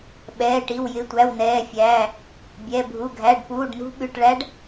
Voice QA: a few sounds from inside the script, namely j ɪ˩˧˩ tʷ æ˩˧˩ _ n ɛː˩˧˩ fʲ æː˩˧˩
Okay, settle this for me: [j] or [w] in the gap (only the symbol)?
w